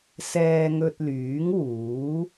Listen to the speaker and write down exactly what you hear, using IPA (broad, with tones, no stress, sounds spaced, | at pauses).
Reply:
s ɛː˧ ŋ ɵ˧ t̚ l yː˨˥ ŋ w uː˨˥